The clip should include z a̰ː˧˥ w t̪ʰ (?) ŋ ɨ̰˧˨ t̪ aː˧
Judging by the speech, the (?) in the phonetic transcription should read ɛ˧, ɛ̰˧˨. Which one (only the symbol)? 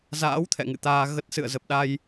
ɛ̰˧˨